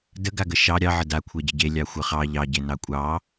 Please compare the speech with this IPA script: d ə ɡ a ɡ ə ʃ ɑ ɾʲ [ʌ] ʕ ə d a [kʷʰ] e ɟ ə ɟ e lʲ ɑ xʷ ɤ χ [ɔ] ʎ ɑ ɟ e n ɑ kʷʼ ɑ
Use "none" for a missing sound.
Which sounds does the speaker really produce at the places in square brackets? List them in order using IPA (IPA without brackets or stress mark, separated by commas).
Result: ɑ, kʷʰ, ɑ